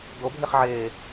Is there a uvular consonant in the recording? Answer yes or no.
yes